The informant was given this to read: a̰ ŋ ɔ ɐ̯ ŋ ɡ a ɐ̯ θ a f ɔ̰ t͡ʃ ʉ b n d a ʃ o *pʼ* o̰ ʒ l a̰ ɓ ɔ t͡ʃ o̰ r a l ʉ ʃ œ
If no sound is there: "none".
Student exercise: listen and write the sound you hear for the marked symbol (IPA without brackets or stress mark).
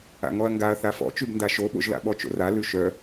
ɓ